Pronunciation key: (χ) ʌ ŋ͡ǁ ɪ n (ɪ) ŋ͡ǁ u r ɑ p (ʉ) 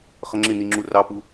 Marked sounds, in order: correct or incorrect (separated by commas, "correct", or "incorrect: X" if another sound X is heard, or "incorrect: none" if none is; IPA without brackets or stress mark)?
correct, incorrect: i, incorrect: u